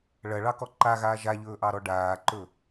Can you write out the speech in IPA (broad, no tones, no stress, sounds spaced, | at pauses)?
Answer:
ɭ ɐ ɭ ɑ k ɔ ǃ a ɣ aː ʒ a ʎ ɵː ʔ ɑ ɾ ɔ ɖ aː ǃ ɵ